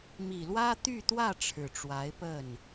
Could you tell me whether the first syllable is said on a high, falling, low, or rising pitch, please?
low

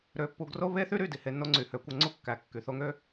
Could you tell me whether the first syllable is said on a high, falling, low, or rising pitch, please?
rising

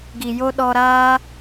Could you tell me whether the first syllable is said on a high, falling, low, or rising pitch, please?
low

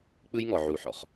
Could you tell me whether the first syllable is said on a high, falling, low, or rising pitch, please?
high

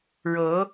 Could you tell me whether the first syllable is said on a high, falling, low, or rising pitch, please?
rising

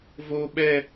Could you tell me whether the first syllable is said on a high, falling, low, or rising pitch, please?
high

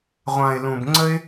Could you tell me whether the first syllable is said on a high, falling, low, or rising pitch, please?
low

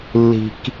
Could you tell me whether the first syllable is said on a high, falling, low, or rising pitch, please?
low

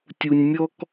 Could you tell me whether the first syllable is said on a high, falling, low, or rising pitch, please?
high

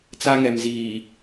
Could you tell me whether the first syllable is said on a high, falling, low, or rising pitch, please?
high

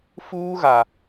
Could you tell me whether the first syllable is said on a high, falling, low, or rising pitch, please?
high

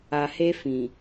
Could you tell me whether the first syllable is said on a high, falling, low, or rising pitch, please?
low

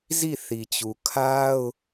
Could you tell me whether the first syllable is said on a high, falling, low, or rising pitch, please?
falling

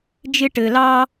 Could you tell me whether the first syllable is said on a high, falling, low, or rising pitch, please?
high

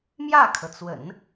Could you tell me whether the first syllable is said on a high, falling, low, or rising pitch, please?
falling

